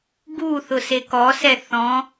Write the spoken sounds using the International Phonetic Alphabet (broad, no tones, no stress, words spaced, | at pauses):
ɡuθʊ sekɔsɛ θɔ̃